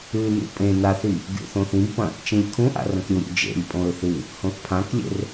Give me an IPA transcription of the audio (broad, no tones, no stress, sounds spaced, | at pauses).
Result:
ʉ n ṵ pʼ ẽ n a θ i | ɡʲ ṵ θ õ θ ĩ b p ɐ̃ | t͡ʃ ĩ lʲ kʰ ũ ʔ a̰ r ɐ̃ k ɾʲ u ɾʲ ṵ d͡ʒ ḛ lʲ pʼ õ ɹ θ ɨ | h õ θ pʰ ã k lʲ ḛ r